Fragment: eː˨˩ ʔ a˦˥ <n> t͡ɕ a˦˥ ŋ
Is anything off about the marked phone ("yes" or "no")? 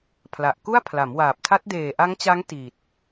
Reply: yes